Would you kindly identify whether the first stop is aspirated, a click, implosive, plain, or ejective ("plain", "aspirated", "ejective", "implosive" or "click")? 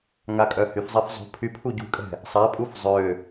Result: ejective